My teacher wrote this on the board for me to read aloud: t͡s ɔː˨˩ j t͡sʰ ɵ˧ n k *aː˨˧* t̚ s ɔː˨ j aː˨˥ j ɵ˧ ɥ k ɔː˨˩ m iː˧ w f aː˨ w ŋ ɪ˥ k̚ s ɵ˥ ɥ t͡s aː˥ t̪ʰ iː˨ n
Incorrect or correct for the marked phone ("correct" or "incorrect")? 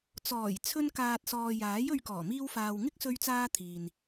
incorrect